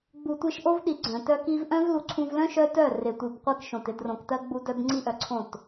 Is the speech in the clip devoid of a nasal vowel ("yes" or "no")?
no